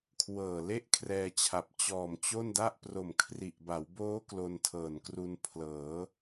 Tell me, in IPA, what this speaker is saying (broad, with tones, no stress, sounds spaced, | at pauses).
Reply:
kʰ w ɤː˨˩ l e˥˩ ʔ kʰ r ɛː˧ t͡ɕʰ a˨˩ p̚ t͡ɕ ɔː˨˩ m t͡ɕ o˥˩ n d a˥˩ ʔ p r o˨˩ m kʰ r i˨˩ ʔ b a˩˦ w b oː˦˥ k l o˧ n tʰ ɤː˨˩ n k r u˧ n pʰ l ɤː˩˦